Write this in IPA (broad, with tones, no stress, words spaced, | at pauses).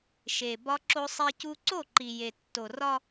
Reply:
ʃe˨ bɒ˦ǁo˦sˤe˦cu˦ ǀo˦˨ǃi˨ je˨tːo˨rɒ˦